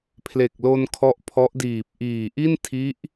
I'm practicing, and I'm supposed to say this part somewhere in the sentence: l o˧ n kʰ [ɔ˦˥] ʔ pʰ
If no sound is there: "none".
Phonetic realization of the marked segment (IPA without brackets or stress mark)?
ɔ˦˥